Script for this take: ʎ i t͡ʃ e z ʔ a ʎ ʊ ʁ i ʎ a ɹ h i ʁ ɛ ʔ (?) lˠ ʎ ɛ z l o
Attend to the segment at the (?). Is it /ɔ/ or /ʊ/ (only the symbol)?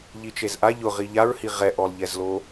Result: ɔ